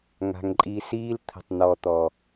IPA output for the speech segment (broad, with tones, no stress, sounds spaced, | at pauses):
ŋ a̤˨ ŋ ǃʼ i˧ s iː˦ l t̪ʰ ə̤˦˨ tˤ n̪ ɔ˧ t̪ ɔ˨